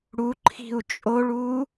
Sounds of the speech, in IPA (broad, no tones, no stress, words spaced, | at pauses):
ɽuǃʰi̤u̯ t͡ʃʼoɭu